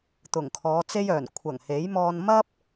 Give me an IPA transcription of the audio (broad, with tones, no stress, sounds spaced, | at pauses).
t̪ ʊ˨˩ ŋ kʰ ɔː˨˧ t͡s e˥ j œː˨˩ n kʷʰ ɐ˨˩ ŋ h e˨˥ j m ɔː˧ n m ɐ˥ p̚